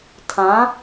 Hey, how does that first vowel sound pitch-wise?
rising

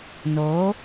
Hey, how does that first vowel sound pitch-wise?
rising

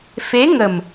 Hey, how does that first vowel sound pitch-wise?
rising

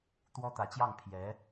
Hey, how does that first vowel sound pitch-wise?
high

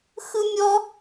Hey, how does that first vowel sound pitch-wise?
high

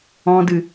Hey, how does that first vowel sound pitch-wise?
low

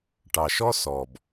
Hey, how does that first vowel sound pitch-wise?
low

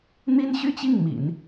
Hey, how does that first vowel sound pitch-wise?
high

